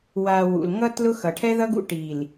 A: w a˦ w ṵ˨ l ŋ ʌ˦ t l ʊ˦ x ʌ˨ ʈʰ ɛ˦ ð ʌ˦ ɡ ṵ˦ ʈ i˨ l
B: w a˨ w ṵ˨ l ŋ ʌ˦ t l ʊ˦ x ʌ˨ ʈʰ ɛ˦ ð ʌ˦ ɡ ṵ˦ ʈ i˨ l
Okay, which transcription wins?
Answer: B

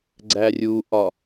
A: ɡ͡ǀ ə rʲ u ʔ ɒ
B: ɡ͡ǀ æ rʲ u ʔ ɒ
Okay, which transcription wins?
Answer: B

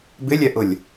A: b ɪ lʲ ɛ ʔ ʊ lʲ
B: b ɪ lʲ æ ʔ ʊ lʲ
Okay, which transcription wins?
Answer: A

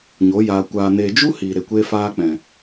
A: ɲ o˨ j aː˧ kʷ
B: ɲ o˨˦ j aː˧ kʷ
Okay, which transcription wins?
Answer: B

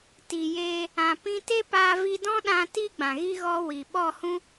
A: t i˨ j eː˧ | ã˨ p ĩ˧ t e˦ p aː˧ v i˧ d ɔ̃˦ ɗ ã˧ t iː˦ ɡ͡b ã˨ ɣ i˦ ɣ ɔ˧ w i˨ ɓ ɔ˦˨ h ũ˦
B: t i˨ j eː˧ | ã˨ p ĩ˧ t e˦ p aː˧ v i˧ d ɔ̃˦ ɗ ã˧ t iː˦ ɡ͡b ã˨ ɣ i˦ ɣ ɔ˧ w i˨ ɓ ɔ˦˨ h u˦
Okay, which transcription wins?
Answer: A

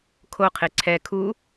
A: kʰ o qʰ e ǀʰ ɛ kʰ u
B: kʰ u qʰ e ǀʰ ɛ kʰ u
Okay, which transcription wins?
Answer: A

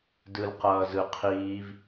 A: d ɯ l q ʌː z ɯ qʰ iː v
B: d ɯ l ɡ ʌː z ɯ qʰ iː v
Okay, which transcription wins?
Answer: A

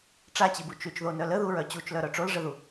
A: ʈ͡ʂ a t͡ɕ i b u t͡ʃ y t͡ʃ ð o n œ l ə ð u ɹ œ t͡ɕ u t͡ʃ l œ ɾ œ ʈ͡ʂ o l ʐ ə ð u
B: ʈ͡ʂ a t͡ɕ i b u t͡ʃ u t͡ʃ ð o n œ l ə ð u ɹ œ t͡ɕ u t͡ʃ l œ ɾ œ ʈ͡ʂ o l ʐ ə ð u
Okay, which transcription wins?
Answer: A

